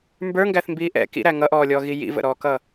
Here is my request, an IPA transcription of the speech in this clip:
mbə˞ŋɡæθmbiː ʔɛ̰ kḭɾæ ŋʌʔɔːlʲɔːɣi jḭvə̰ɾɔːkʌ

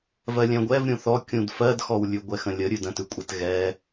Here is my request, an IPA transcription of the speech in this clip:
vɜlʲɛ̃ɡʷɛv ɾʲũθɔ kʲũdfɜdxɔw lʲʉɡʷɛxə̃lʲə ɾʲʉdə̃tʉkʷʼɛt ɣɛ

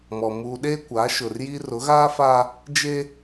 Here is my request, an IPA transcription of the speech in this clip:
mɔ˨ muː˨ɗeː˦kʷaː˨˦ ʃʊ˨rji˦ rʊ˨˦ɣaː˦faː˦ | d͡ʒe˦

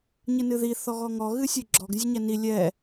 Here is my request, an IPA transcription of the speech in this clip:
ɲɨnɨði θɔɣɔŋɔ ɣɨsʲɨɡ͡ǁɔɡ zʲɨɲɛni lʲɛ

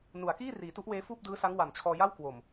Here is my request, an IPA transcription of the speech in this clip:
nu˩˦a̯kiː˥˩ riː˩˦tu˦˥ʔweː˦˥ fuː˥˩p̚dɯː˦˥sa˦˥ŋ wa˨˩mt͡ɕʰɔː˧ ja˥˩w kwo˨˩m

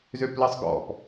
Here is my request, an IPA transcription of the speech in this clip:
zøpləsˤɡɔ̰p

